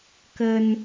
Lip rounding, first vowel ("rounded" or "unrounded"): unrounded